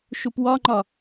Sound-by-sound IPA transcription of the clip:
ʃ u p w ɒ ŋ͡ǃ ɒ

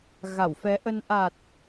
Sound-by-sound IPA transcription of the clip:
ɣ a˧˩ w f ɛ˨˦ ʔ ə˧ n ʔ a˨˩ t̚

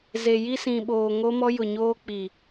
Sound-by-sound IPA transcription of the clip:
z e˨ j i˦ s ĩ˨ ɓ oː˨ ŋ o˦ m ɔ˦ j ʊ˨ ɲ oː˦ k͡p i˨

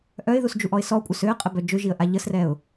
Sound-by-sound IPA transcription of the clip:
ʔ œ ɪ̯ ð u s d͡ʒ u ʔ ɔ ɪ̯ s ɔ kʷʼ œ s ø ə̯ qʼ ə b œ d͡ʒ ø ʒ i ə̯ ʔ a ʎ ə s r ɛ ʊ̯

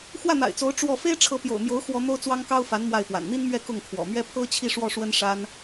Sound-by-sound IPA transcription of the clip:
x w ä˥˩ n̪ a̰˨˩ ɪ̯ t͡s o˧˥ ʊ̯ ʈ͡ʂ w ɔ˥˩ f e˥ ɪ̯ ʈ͡ʂʰ ɤ˧˥ p j o̰˨˩ ʊ̯ m j o˧˥ ʊ̯ x w ɔ˥ n̪ o˥ ʊ̯ t͡s w ɑ˥ ŋ k ɑ˥ ʊ̯ f a˧˥ n m w a˥˩ ɪ̯ p w a̰˨˩ n n̪ i˥ n m ɥ ɛ˥˧ k ʊ˥˩ ŋ kʰ w ɔ̰˨˩ m ɥ ɛ˥ pʰ ɤ˥ t͡ɕʰ i˥˧ ʂ w ɔ˥˩ ʂ w ə˥ n ʂ a˥ n

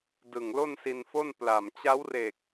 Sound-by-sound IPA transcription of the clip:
d ɯ˨˩ ŋ l o˥˩ n s i˧ n f o˥˩ n p l a˨˩ m t͡ɕ a˦˥ w r e˨˩ k̚

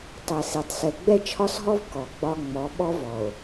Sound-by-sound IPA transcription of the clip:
tˤ ɛ˨ s i˨ tˤ s ɛ˨ ɡ͡b ɛ˦ t͡ʃʰ ɒ˦ s ɦ ɔ˦ v k ɔ˨ ɡ͡b ɒ˦ ŋ͡m ɔ˨˦ ɓ ɔ˦ v ɔ˨ o̯

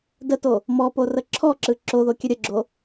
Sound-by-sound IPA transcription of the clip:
d ə t o | m ɔ p o r ə ǁʰ ɔ ǁ ɯ ǁ o ð o kʲ ə ɾʲ ə ɡ͡ǁ o

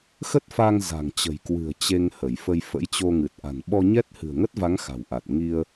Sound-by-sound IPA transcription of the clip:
x ə˦˥ t̚ f a˧ ŋ z a̤˨˩ ŋ t͡ɕ ə̤˨˩ j k w ɨ̤˨˩ ə̯ t͡ɕ e˧ ŋ h ə˧˩ j f ə˧ j f ə̰˧˥ j t͡ɕ o˧ ŋ ɨ˨˩ t̚ ʔ a̤˨˩ n ɓ ɔ˧ ɲ ɛ˦˥ t̚ h ɨ̤˨˩ ə̯ ŋ ə˦˥ t̚ v a˨˦ ŋ x a̤˨˩ w ʔ a˨˩ t̚ ŋ i˧ ə̯

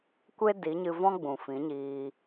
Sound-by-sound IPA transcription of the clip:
kʷ e˦ d i˨˦ ɲ ɨ˧ v ɔ̃˦ ɡ͡b ũ˨ f ĩ˨˦ ɲ iː˧

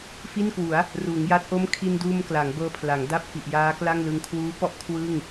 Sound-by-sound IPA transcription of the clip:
f i˥˩ n k w u˩˦ a̯ | r uː˩˦ ŋ j a˦˥ t̚ ʔ o˦˥ m kʰ i˧ n d uː˧ m k l a˩˦ ŋ b ɤː˧ pʰ l a˩˦ ŋ d a˥˩ p̚ f i˨˩ ʔ j aː˦˥ k l a˥˩ ŋ l ɯ˧ ŋ kʰ w uː˦˥ p ɔ˦˥ ʔ kʰ w ɯ˥˩ ŋ

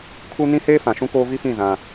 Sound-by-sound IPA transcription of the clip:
kʰ u˦ n ĩ˦ h eː˦ f ã˨ ʃ ũ˦ k oː˦ v i˦ f ĩ˦˨ z ã˦

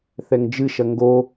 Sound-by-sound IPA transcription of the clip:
θ ɛ ŋ d͡ʒ ɨ ʃ ɐ ŋ ɡ o

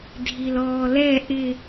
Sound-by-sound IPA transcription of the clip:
dʱ i l ɔː l ɛ ʔ ɪ

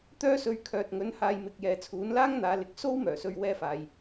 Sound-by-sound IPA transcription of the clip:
t̪ œː˥ s ɵ˧ ɥ kʰ œː˨ t̚ ŋ ɵ˨˥ n h aː˨˧ j m ɪ˨ k̚ j ɛː˨˧ t͡sʰ uː˨˥ n l aː˥ ŋ n̪ aː˨˧ l ɪ˨ k̚ s o˥ w m œː˨˩ s ɵ˨˧ ɥ w ɛː˧ f aː˨ j

